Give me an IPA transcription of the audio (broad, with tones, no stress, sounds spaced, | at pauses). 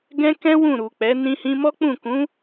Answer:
ɡ ɛ̃˦ k ɛ̃˦ w ũ˦˨ ɾ u˨ k͡p ɛ˨˦ n ĩ˧ h ĩ˧ m ɔ˦ k͡p ũ˦˨ k ũ˨˦